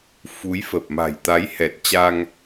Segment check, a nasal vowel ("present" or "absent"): absent